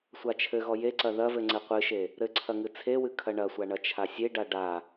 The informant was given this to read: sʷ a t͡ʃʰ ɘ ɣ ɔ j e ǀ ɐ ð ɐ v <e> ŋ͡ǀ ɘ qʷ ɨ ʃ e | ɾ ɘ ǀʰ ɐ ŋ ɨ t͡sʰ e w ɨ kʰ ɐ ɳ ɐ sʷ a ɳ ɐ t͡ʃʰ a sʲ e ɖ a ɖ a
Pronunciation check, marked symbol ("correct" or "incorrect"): incorrect